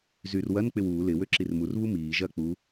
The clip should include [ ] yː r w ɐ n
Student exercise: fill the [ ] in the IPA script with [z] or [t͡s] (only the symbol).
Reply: z